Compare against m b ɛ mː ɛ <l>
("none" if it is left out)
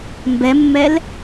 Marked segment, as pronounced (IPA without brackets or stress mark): l